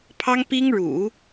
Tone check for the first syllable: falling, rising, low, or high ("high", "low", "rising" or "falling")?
high